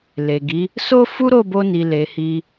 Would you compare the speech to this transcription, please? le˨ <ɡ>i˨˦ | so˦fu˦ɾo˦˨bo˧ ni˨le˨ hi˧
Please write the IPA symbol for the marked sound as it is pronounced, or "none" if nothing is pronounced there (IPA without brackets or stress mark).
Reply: ɡ